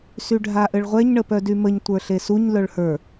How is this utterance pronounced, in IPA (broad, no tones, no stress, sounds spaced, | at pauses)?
s y ɖʱ a ʔ ɘ ɭ ʁʷ ɛ ɲ ɳ ə p œ d y m ə ɲ tʷ ə˞ ɬ e s u ɲ l œ ɭ h ə˞